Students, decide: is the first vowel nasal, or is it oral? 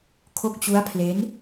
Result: oral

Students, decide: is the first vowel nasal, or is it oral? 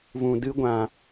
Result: nasal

